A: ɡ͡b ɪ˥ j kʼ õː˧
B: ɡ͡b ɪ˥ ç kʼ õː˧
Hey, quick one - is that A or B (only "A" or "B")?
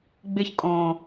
B